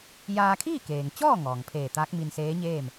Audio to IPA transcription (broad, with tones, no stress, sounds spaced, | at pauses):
j aː˧ kʰ iː˥˨ k eː˩ ŋ t͡ɕ ɔː˥˨ ŋ ɔː˩ ŋ pʰ eː˧˩ t̪ aː˧˥ k̚ m i˧ n s eː˧˥ ɲ eː˥˨ m